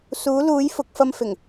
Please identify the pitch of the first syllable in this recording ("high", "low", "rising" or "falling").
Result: rising